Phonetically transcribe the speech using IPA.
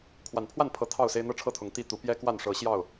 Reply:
kʰ w a˨˩ n pʰ w a˥˨ n pʰ ɤ˨˦ t̪ʰ ɑ˥˨ ʊ̯ s e˦ ɪ̯ n̪ ɤ˥˨ ʈ͡ʂʰ ɤ˥˨ t̪ʰ ʊ˨˦ ŋ t̪ i˥˨ t̪ u˨˦ p j ɛ˦ k w a˥˨ n ʂ ɤ˨˦ ɕ j ɑ˥˨ ʊ̯

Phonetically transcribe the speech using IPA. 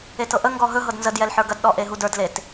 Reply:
e t ɤ ʔ ə ŋ ɡ ɔ ɦ ɵ ɦ ɤ d n z ə d j ɛ l ħ ə˞ ɡ ɐ d ɗ ɔ ʔ e ɦ u d ə˞ d l e t

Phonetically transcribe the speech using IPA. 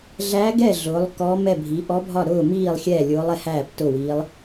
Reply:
ɮ æ˧˥ ɡ ɛ˥˩ ɮ ʊː˩˥ lˠ k ɔː˧˥ m ɛ˥˩ bʱ i˩˥ ʔ ɔ˧˥ bʱ ɒ˥˩ ɾ ʊː˥˩ m iː˥˩ lˠ xʲ ɛː˥˩ lʲ ʊː˧˥ lˠ ɛ˧˥ h æː˥˩ p t ʊ˥˩ w iː˧˥ lˠ

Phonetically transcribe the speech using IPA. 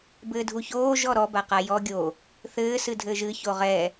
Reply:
b ɘː dʱ u ç oː ʒ ɔ ɾ ɔ b a q a j ɔ ɡʲ o | θ ɘː s ɨ dʱ ɘː ʒ ɨ ç o ʁ ɛ

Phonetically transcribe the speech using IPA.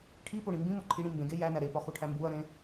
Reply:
ʈʰ i p o ɽ ĩ m b ĩ m o ǃʰ i ɽ ĩ m b ẽ ɡ e j æ n æ ɾ e p ɒ x o ʈʰ æ m b u ɐ̯ ɾ ẽ

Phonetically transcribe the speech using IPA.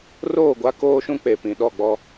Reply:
r oː˦˨ ɡʷ a˦ k oː˦ ʃ ũ˦ k͡p e˨ p ĩ˨ ɗ ɔ˦˨ ɡ͡b ɔ˦

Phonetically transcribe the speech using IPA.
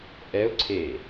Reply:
ʔ ɛ ʊ̯ ǀʰ e

